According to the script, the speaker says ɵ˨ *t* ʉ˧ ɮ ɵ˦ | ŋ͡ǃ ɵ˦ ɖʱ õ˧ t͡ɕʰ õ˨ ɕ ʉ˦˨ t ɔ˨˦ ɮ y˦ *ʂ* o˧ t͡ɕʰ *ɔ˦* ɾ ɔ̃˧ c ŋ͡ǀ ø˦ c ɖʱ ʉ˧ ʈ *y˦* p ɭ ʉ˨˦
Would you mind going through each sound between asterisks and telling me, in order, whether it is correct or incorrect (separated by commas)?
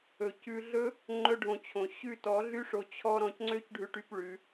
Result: incorrect, correct, correct, correct